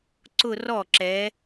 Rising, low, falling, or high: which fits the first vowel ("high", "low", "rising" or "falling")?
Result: falling